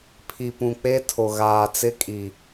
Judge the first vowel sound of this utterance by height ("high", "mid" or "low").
high